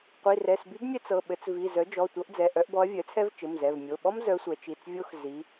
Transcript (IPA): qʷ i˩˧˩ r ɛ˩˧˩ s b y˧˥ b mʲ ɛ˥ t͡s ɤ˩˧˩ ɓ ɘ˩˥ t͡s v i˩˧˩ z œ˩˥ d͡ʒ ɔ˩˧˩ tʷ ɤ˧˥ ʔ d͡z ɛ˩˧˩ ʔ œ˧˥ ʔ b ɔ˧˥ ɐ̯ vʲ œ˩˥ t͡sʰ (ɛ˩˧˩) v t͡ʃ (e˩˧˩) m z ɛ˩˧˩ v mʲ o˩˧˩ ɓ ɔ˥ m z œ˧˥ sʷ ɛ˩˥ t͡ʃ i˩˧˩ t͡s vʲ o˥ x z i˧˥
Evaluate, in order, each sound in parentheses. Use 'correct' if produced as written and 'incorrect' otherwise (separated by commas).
incorrect, incorrect